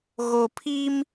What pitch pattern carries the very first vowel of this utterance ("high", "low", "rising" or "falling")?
low